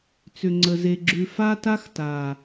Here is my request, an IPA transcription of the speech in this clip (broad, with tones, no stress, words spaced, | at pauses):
t͡sʏ˨ŋ͡ǀə˨ ze˨ɡ͡ǁʉ˨ fa˦ta˦xta˨